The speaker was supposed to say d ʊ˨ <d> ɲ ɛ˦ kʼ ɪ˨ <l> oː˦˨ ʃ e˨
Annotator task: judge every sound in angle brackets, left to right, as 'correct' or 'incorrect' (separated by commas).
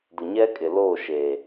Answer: incorrect, correct